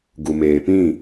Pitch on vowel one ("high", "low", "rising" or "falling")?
low